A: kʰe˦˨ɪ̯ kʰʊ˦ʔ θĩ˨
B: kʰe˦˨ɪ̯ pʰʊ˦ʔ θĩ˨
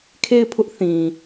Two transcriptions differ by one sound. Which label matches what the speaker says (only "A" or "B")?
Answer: B